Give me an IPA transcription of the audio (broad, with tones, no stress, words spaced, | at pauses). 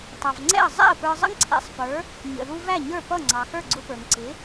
tˤɑ˩vŋ͡ǀɛ̰˥˩ə̯ zˤɛ̰˥˩ə̯pə˞˧zˤə̰˥ŋ ǀʰɛ̰˧sˤpə˞˩˥ | ɲə̰˩ðu˧ væ˥˩ɲə˞˥˩pʌ˥˩ ŋ͡ǀɑ˩xə˞˥˩ ɡ͡ǀʊ˧pə˞˩ŋ ǀɪ˩˥